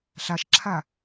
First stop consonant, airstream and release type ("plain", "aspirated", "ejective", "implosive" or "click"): click